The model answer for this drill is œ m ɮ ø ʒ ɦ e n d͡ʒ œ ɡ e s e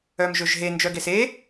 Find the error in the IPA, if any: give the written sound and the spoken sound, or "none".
ɮ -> ʒ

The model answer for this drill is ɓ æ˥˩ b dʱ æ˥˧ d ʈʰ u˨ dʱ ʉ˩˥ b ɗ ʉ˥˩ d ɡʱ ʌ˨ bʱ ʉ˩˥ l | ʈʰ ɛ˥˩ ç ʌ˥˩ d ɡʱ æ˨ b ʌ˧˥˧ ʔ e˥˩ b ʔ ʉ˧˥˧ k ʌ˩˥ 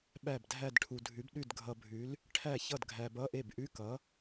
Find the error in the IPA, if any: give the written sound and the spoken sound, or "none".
ɛ˥˩ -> æ˥˩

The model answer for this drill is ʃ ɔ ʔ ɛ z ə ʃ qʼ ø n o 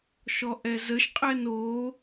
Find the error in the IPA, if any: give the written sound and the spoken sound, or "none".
ø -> ɛ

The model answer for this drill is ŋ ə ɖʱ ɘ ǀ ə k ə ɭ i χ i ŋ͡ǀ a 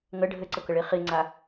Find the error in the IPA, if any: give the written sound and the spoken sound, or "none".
none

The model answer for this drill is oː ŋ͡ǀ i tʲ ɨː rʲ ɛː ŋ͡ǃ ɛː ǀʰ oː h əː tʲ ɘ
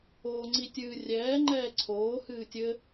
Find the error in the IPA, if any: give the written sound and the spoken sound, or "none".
əː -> ɨː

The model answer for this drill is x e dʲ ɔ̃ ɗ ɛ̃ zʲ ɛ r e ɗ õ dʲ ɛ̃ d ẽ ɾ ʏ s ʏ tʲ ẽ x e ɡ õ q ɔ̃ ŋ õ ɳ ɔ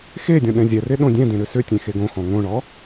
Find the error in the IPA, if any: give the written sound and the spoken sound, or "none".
q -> x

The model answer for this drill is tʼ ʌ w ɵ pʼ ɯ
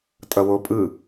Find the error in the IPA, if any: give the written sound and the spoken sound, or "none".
ɵ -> o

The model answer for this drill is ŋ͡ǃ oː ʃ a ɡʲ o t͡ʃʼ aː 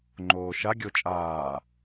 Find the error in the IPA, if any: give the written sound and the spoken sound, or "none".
none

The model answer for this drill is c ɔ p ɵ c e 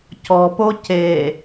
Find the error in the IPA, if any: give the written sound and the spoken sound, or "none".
ɵ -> o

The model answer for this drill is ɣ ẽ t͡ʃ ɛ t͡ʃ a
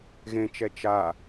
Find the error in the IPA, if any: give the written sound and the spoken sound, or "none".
none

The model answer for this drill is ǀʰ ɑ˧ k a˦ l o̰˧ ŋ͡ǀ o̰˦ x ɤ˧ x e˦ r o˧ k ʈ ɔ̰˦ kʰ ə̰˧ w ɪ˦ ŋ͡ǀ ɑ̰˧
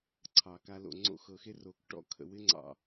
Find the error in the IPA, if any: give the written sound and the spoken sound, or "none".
none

